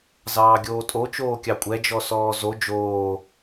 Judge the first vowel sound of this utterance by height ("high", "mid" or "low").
low